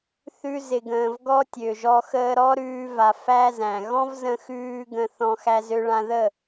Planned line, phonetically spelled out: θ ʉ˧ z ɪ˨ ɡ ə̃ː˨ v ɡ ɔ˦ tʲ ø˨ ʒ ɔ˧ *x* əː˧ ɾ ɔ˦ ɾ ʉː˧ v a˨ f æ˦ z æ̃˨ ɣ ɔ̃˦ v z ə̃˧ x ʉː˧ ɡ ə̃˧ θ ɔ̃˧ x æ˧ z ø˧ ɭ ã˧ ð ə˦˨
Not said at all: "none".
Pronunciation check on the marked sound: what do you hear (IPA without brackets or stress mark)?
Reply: x